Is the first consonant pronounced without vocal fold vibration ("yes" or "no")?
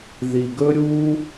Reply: no